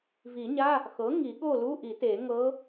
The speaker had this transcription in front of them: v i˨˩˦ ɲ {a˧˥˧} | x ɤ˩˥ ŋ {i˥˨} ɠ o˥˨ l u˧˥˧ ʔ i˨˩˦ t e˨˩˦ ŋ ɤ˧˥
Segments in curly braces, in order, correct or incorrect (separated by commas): correct, incorrect